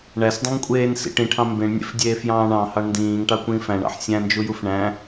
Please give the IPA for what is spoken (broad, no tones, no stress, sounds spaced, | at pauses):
ɳ æ s dˤ ũ ŋ kʷʼ eː n s ḭ ʈ ĩ ʈʰ ɑ̃ m b ẽ ɳ nʲ ḛ f dʲ eː f j ɑ̃ː ɳ ɑ̃ h ɑ ɳ n d ĩː ŋ ʈ ɑ kʷ ĩː f æ̃ ɳ ɑ̰ ħ sʲ æ̃ n d͡ʒ u j u f ɳ æ̃